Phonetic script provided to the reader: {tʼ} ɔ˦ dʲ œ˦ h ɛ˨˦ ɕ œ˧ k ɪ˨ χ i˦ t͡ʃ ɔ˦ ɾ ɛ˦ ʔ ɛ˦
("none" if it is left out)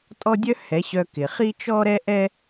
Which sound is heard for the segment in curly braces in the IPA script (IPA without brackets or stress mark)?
tʼ